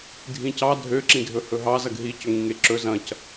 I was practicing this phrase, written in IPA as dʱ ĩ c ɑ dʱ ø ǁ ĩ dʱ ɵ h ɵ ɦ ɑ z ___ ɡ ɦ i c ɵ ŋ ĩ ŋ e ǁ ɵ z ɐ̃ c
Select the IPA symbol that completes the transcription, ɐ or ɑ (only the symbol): ɐ